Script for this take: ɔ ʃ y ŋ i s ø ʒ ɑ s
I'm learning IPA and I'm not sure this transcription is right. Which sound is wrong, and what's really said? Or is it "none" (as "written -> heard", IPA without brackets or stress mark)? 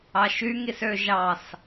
ɔ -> ɑ